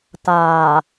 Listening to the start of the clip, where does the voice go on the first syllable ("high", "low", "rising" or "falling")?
low